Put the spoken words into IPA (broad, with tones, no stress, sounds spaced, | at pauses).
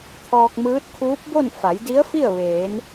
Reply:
t̪ʰ ɔː˧ k̚ m ɯː˧˥ t̚ kʰ uː˧˥ p̚ b o˥˨ n f a˩˧ j d i˧˥ ə̯ f i˥˨ ə̯ ʋ eː˩˧ n